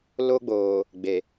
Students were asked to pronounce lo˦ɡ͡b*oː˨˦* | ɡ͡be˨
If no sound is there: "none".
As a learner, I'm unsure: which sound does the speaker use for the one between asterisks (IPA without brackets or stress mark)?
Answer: oː˨